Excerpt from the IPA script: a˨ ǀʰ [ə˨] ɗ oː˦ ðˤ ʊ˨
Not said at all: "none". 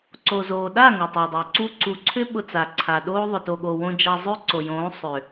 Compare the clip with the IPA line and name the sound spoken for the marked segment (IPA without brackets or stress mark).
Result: a˨